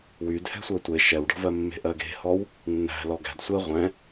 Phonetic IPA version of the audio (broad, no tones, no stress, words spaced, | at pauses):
wydhɛ̤ sʷɜtʷe ʃɛwɖɔ̤vɜ mːe̤ʔɜɡe̤hɔw | nːæ̤ lɔɡæ̤d sʷɜ ʁʷɛ̃